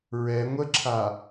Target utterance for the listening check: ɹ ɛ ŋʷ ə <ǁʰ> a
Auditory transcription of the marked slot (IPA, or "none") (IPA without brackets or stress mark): ǁʰ